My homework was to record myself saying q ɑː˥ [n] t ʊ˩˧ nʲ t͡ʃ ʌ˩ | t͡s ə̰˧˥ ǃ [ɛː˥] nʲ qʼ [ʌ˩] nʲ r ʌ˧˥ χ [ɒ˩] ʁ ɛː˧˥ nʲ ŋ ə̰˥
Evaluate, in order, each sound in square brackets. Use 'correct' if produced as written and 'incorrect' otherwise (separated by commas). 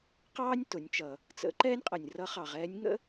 incorrect, correct, correct, incorrect